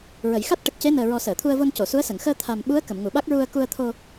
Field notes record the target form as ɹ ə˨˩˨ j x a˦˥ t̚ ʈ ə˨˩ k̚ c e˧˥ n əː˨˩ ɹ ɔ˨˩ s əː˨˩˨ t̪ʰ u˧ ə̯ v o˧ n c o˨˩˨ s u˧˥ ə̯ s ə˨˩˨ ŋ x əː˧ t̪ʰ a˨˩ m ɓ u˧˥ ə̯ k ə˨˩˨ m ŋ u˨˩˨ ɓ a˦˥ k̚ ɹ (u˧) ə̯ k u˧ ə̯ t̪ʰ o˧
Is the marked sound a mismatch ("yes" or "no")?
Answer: no